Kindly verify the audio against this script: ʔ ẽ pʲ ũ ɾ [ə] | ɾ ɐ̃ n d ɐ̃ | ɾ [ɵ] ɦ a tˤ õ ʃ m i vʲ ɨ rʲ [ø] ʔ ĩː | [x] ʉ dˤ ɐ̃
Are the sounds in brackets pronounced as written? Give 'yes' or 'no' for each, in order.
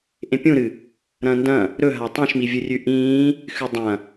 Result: no, yes, no, yes

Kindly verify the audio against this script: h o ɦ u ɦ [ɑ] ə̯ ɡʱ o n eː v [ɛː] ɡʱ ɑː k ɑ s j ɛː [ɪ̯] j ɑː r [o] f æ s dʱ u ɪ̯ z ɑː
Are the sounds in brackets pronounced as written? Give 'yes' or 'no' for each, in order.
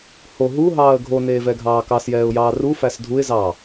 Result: no, no, no, no

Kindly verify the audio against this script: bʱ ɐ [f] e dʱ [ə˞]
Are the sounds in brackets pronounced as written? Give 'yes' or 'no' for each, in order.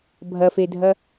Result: yes, no

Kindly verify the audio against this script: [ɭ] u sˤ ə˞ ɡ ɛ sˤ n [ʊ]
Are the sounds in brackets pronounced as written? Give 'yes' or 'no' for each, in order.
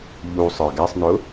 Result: no, yes

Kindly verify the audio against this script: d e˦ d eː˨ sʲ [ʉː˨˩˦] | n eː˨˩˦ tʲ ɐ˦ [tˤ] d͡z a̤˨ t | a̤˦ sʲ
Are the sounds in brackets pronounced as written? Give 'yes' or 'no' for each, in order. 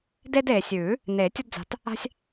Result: yes, no

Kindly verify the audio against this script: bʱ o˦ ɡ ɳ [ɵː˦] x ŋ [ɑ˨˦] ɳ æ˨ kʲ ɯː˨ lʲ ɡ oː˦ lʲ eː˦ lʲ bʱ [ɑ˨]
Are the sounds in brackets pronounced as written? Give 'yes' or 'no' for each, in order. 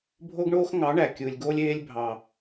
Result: no, yes, yes

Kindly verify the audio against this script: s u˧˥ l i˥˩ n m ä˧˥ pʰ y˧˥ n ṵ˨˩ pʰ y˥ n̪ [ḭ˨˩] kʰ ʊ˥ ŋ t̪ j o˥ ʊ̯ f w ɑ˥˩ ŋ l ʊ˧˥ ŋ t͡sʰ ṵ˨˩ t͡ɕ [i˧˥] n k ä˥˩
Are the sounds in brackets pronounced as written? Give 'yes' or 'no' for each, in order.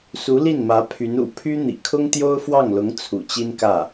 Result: yes, no

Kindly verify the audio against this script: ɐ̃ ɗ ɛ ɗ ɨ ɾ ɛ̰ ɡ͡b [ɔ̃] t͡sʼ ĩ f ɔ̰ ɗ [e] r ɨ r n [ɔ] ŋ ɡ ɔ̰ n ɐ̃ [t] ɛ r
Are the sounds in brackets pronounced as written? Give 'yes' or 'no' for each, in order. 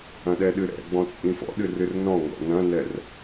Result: yes, no, no, no

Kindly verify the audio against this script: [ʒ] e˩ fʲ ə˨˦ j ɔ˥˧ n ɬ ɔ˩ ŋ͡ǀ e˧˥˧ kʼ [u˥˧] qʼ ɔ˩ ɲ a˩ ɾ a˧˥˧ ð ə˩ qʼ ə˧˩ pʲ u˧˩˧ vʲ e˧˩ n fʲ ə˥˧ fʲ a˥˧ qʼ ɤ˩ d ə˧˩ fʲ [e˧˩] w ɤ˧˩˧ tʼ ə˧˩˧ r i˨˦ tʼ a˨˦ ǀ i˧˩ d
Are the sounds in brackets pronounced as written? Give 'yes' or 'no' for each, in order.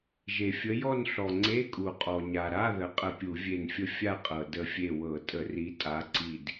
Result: yes, no, yes

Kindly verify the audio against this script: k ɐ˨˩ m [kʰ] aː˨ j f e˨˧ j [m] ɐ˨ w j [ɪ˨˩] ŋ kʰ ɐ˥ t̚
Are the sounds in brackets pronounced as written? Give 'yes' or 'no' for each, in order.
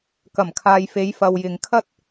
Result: yes, no, no

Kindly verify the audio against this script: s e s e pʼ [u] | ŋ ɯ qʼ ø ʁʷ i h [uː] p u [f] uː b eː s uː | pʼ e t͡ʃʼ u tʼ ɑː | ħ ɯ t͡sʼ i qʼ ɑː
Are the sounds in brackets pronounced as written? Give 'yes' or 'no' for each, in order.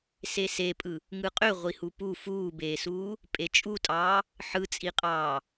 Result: no, no, yes

